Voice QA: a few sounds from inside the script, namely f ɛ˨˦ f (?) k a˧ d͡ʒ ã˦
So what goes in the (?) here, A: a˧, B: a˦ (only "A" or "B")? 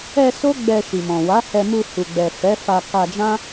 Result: A